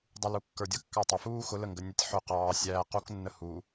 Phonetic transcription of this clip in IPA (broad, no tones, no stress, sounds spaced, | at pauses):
dˤ u l u kː ə˞ dʲ ʌ kː ɑ tˤ ɪ f uː x ʊ l ə ŋ ɡ ə nʲ ə tʲ ħ ʊ q ɑː sʲ æː q u k nː ə h u